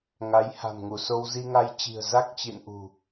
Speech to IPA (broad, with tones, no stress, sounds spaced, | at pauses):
ŋ a˨˦ j h a̤˨˩ m ŋ u˧˩ s o˧ w z i˧ ŋ a˧ j t͡ɕ i̤˨˩ ə̯ z a˦˥ k̚ t͡ɕ ḭ˧˨ n ʔ ṳ˨˩